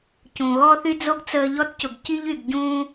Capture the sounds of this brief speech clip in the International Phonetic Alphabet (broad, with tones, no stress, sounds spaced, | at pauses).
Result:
c ũ˩ ɣ ɔ˥ θ y˥ d͡z o˥ ɡ t͡s əː˧ ʎ ɔ˥ t c ʊ˩ ɡ c i˥ ʎ y˩ ɡ ɟ ũː˧